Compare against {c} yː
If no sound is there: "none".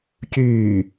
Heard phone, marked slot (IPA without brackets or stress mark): c